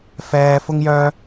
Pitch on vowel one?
high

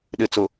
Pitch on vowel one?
low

